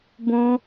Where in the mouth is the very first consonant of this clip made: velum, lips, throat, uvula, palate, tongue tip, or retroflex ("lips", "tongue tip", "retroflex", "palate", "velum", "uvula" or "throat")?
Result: lips